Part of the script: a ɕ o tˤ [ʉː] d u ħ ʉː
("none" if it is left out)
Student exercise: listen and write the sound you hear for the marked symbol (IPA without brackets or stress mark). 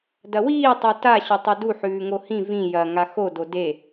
ʉ